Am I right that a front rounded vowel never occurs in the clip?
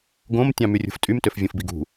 no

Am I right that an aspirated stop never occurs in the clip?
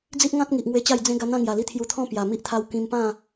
no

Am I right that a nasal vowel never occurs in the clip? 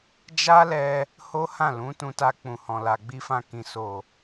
no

